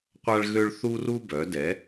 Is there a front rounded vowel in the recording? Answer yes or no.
yes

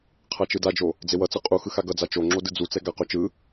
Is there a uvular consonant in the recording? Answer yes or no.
yes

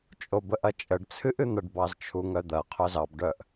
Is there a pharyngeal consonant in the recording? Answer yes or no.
no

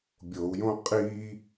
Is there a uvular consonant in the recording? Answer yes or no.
yes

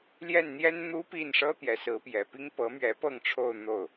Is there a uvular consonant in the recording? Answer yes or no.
no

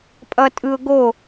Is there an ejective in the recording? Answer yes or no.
yes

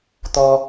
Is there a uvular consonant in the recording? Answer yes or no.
no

